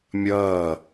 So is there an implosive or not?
no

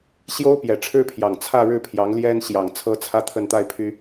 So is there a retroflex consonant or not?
yes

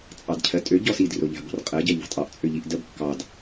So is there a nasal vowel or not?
no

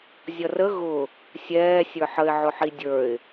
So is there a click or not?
no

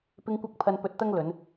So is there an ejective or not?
no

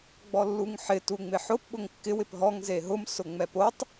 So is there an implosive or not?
yes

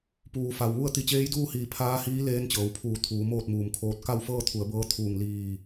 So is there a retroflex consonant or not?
no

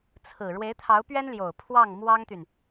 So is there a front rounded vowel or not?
yes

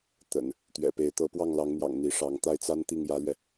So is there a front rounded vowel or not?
no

